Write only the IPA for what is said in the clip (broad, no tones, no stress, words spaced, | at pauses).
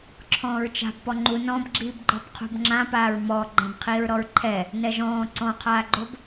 ǁʰɔ̃ːɹt͡ʃa̤b pɔŋ͡ǃu nɔ̃bɡ͡ǁiːbɡ͡ǃɔb qʰṳbŋ͡ǁãpaːɹ mɔ ɡ͡ǃɛ̃bqʰiːɹɾɔɹǃʰɛ | nɛʒɔ̃ː ǀɔ̃qʰaːɡ͡ǃob